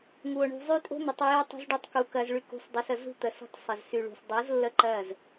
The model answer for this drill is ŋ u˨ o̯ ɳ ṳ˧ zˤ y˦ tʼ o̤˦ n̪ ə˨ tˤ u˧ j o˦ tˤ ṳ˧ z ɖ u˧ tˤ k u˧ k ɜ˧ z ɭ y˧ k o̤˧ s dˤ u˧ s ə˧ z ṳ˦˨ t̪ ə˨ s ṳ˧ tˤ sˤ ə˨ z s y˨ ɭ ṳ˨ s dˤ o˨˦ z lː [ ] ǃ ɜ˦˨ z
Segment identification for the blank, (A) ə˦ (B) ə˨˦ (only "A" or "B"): A